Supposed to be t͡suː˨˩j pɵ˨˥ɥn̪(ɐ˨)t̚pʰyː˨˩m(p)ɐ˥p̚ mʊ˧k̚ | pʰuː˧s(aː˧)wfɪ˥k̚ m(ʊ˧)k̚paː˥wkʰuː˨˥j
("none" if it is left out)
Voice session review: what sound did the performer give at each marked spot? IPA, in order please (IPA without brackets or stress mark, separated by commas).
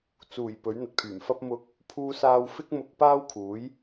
ɐ˨, f, aː˧, ʊ˧